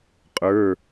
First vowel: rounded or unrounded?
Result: unrounded